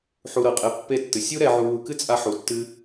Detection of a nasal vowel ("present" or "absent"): absent